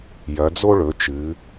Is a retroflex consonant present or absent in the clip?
present